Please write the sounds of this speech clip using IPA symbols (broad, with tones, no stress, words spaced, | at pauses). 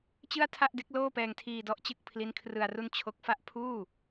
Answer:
t͡ɕɯ˥˩a̯tʰa˥˩ʔde˦˥k̚ loː˥˩pɛː˧ŋtʰiː˧ dɔ˦˥ʔt͡ɕɯ˥˩k̚ pʰli˦˥nkʰrɯ˧a̯ru˥˩n t͡ɕʰo˦˥k̚fa˥˩ʔ pʰuː˥˩